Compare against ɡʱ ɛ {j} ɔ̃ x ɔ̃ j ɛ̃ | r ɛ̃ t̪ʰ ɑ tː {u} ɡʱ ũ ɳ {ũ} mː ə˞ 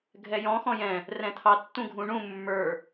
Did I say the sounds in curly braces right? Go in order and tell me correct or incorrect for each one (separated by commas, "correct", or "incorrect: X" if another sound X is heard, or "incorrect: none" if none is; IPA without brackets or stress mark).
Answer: correct, incorrect: ũ, correct